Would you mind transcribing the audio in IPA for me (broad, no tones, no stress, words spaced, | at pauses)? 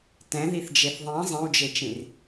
tɛ̃ðiθd͡ʒeθ ðˤĩ zˤẽwd͡ʒet͡ʃĩr